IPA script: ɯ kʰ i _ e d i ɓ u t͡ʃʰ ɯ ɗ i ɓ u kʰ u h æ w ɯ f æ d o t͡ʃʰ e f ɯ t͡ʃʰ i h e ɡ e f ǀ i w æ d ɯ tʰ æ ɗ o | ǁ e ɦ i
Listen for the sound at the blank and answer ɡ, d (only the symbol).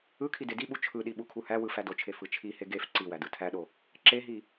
d